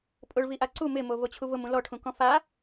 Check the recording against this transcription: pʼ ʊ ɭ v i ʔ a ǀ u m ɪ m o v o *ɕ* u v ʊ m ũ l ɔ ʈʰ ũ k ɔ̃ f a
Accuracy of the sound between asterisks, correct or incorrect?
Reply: incorrect